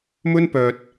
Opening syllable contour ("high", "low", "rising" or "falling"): high